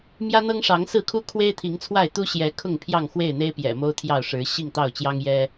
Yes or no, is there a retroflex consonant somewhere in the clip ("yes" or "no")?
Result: yes